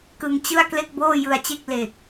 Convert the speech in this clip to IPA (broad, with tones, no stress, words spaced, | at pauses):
kɯ˧ŋt͡ɕɯ˥˩a̯ kle˥˩k̚boː˥˩jɯ˧a̯t͡ɕe˥˩k̚ le˨˩k̚